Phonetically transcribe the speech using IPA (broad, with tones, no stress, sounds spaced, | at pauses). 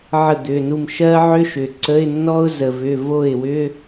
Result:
ʕ ə˥˩ d̪ ʏ˩˧˩ n u˥˩ m ʃ ɜ˥ ʕ ʏ˥ ʃ ʏ˩ ǀ ə˧˥˧ ɪ̯ nː ɔ˥ ʊ̯ z ə˩ v ʏ˩˧˩ v o˥˩ ɪ̯ w ʏ˧˥˧